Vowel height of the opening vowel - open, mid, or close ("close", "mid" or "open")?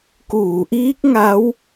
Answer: close